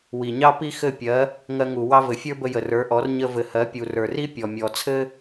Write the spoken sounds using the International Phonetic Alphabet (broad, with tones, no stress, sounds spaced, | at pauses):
w i˩ ɲ ɑ˥ p i˥ x ɘ˥˩ pʲ ɜ˩˥ | ŋ ɜ˧ ŋ u˩ w ɑ˥ v ɘ˩ fʲ ə˞˥ b ə˧ j ə˩ r ə˞˩˥ ʔ ɔ˩˥ r ɲ ə˧ v ɘ˩ h ɜ˩˥ pʲ u˩ r ə˞˩ r i˥ pʲ ɔ˩ mʲ ɔ˩ t͡sʰ ɘ˥